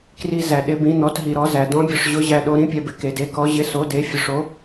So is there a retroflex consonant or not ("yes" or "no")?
yes